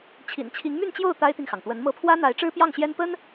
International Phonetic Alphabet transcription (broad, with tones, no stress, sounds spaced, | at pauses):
t͡ɕʰ ḭ˨˩ n t͡ɕʰ i˧˥ ŋ m y˥˧ n t͡ɕ j o˥˩ ʊ̯ t̪ a˥ ɪ̯ t̪ i˨ ŋ x ɑ˩ ŋ t̪ w ə˧˥ n m ɤ˧˥ pʰ w ä˥ n̪ a˧˥ ɪ̯ ʈ͡ʂ ɻ̩˥ p j ɑ˥˩ ŋ ɕ j ɛ˥ n p ə˥ n